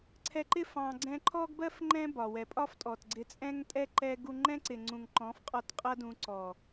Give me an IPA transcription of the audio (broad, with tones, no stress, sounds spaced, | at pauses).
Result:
ǀʰ ɛ˧ ǃ ɪ˦ f ɑ̃˧ ɡ͡ǀ ɛ̃˧ ǃʰ ɔ˦ ɡ b ɜ˦ f ŋ͡ǃ ɛ̃˦ b ɒ˨ w ɛ˨ pʼ ɒ˦ f tʼ ɔ˨ t ɡ͡ǀ ɪ˧ t͡sʼ ɛ̃˦ ŋ tʼ ɛ˦ ǃ ɛ˦ ɡ u˧ ŋ͡ǃ ɛ̃˦ ǀ ɪ˨ ŋ͡ǀ ũ˨ ŋ ǃ ɔ̃˨˦ f qʼ ɒ˧ t qʼ ʌ˦ d ũ˧ ǀ ɔ˨